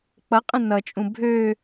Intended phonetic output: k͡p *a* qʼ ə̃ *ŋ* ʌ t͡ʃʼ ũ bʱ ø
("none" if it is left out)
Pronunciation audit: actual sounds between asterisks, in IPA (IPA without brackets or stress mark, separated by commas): ʌ, n